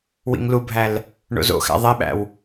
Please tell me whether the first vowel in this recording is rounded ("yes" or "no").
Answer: no